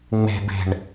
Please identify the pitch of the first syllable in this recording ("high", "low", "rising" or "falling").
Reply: low